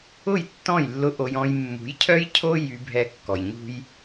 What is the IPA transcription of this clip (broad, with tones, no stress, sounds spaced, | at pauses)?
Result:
ʊ˦˨ j tː ɔ̃˦˨ j lː ʊ˧ ʔ o˧ j ɔ̃˧ j mː ṳ˨˦ j cʰ œ˦ j cʰ o˦ j y˧ bʱ ɛ˧ kː ɔ˨ j ɲ ṳ˦ j